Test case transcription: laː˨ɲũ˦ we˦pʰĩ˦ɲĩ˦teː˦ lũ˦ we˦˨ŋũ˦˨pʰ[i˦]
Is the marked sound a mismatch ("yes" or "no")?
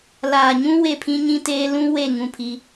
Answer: no